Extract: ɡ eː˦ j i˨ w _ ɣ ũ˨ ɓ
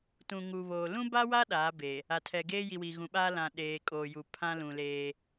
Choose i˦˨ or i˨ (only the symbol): i˨